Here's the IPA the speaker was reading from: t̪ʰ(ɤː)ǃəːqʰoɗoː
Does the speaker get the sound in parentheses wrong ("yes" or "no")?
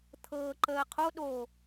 no